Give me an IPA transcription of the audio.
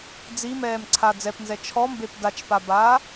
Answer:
d͡z i m ɛː m ǀʰ a d͡z ɛ p n z ɛ t͡ʃʰ ɔ m b e p d a t͡ʃ p a b aː

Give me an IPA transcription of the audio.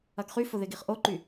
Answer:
ɐ ɡ χ y f ʊ ð ɪ ɡ i χ ʔ o ǃ y

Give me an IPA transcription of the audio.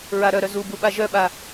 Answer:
ɹ a ɾ œ ɾ œ z u b u ɓ a ʒ œ ɓ a

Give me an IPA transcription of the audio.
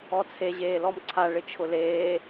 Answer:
ɔ t͡sʰ e ʑ eː l ɔ m ǀʰ a ɭ ɪ t͡ʃʰ ʊ l eː

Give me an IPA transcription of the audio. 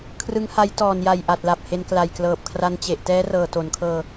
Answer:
kʰ r ɯ˦˥ ŋ h a˦˥ j t ɔː˨˩ n j a˨˩ j ʔ a˨˩ t̚ l a˨˩ p̚ h e˧ n k l a˨˩ j k l ɤː˨˩ p̚ kʰ r a˧ n t͡ɕ e˨˩ ʔ t ɛː˦˥ r ɤː˨˩ t o˩˦ n kʰ ɤː˧

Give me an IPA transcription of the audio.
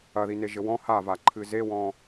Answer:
ɐ ð i n e ʒ ɘ w ɔ̃ h a v a ǃʰ ɨ z e w ɔ̃

